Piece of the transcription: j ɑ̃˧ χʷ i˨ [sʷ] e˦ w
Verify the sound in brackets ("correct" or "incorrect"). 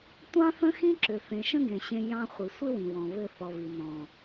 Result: correct